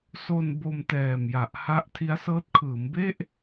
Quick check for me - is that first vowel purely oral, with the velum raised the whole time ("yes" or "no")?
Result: yes